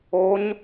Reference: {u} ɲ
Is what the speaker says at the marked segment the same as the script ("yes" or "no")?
no